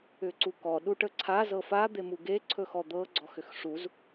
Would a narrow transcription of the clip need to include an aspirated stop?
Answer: yes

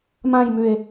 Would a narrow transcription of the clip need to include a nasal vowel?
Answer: yes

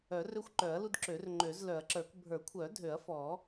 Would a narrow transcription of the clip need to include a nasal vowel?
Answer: no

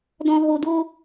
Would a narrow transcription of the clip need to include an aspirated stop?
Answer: no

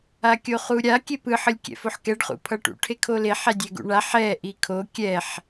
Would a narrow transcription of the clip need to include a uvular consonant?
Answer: yes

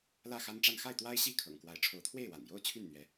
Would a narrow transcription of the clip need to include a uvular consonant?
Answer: no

